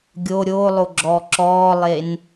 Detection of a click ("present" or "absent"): present